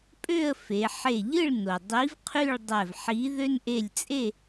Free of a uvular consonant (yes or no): no